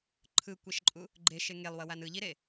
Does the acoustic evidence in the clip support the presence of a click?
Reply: yes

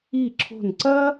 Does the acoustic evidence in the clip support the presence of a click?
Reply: yes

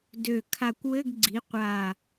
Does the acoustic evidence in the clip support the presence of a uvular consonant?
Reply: yes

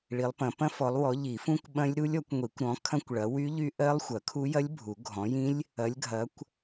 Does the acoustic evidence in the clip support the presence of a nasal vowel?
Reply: yes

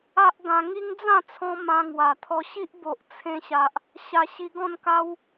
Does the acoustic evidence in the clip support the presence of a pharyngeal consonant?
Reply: no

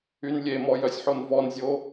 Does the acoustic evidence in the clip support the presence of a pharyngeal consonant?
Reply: yes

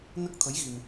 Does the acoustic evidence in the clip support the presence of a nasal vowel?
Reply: no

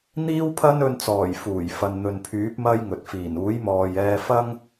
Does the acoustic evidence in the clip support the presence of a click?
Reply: no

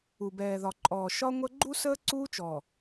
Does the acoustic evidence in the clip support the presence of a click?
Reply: yes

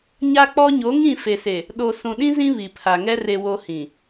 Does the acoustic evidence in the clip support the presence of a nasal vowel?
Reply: yes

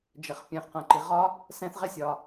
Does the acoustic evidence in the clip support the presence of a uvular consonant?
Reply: yes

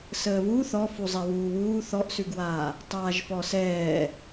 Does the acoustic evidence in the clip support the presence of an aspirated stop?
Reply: no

